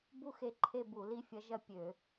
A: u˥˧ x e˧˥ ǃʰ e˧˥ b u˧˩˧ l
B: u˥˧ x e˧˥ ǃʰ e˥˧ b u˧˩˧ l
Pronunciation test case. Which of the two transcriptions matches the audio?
B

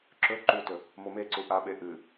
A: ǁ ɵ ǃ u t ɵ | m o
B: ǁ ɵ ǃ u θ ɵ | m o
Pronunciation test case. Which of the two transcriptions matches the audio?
A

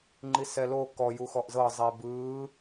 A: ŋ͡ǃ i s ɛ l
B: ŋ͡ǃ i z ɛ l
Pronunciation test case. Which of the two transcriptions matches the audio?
A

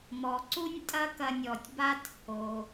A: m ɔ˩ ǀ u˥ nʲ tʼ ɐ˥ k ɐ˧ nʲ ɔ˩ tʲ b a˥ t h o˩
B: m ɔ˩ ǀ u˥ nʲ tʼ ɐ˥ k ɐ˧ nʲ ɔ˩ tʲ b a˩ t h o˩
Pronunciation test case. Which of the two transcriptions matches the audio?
A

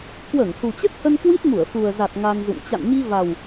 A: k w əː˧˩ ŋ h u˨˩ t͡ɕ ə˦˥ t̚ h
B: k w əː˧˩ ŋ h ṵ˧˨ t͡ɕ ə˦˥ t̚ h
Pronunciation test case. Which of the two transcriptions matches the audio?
A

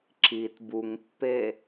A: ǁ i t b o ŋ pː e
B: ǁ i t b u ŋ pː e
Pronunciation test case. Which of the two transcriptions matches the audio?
B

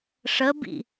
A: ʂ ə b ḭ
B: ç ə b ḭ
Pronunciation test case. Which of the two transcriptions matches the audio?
A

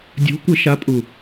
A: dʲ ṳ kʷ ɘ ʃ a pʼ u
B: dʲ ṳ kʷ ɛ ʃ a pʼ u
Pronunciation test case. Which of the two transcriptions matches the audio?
A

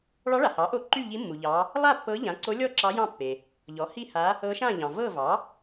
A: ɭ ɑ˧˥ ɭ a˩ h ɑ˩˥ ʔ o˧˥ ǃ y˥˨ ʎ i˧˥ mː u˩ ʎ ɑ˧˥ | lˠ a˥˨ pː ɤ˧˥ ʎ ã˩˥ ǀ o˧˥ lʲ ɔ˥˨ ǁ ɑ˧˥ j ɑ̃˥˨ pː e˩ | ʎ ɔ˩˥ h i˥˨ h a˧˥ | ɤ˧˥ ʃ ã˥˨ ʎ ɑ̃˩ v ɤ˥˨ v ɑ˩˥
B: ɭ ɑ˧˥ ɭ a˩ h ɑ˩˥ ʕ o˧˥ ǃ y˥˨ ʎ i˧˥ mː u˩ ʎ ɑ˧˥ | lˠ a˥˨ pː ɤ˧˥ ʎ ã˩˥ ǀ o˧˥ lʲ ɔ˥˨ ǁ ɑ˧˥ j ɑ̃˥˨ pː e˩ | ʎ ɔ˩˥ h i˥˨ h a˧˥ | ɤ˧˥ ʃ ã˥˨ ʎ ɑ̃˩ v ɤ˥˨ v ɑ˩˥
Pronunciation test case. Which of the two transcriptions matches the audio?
A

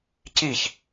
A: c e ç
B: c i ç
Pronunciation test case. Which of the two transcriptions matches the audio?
B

